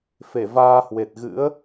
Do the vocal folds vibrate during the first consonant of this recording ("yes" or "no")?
no